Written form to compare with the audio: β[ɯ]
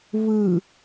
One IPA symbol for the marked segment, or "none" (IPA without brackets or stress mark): ɯ